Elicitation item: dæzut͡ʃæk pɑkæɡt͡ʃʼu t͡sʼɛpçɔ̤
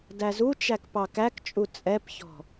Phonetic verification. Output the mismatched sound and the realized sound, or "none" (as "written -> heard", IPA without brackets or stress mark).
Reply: ɡ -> k